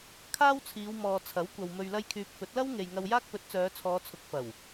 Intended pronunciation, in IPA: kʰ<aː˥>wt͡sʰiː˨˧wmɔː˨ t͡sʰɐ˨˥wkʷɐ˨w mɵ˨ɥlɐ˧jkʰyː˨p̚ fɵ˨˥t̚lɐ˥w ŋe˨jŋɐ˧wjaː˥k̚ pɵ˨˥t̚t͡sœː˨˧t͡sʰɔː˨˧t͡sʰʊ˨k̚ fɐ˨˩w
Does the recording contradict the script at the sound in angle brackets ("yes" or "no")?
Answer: no